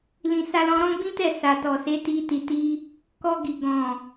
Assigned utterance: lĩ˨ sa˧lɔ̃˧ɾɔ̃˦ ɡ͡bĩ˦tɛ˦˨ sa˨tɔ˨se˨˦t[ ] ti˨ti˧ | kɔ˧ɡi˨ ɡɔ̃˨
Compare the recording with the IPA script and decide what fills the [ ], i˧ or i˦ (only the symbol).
i˧